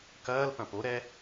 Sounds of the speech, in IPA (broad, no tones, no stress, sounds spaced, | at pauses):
k ɐː l p ɐ̃ p o ɾ ɛ